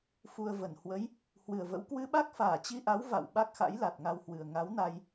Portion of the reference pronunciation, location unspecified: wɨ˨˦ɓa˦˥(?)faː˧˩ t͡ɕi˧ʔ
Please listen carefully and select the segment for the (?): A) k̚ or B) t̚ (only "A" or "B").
A